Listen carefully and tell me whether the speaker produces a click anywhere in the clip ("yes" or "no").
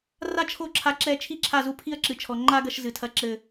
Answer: yes